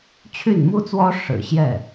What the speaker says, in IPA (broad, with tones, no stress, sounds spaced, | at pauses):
t͡ɕʰ y˥˩ n m u˥ t͡s w ɔ˥ ʂ ɻ̩˨˩ ɕ j ɛ˥˩